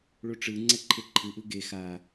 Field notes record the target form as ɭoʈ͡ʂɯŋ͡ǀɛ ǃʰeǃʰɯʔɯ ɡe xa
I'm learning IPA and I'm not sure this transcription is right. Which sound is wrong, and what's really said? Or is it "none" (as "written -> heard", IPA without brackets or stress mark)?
none